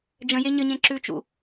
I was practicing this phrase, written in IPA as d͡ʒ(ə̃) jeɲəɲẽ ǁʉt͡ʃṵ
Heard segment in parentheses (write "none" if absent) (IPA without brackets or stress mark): ə̃